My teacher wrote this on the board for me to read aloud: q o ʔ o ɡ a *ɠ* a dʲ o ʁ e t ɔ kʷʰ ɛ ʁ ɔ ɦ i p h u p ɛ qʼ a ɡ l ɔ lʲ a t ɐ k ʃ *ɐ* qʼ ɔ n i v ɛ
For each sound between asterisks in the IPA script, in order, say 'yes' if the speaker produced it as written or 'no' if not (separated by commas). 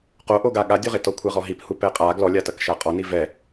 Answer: yes, no